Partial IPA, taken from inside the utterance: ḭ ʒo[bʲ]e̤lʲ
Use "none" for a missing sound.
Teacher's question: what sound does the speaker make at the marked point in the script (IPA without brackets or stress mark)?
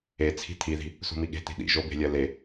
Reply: b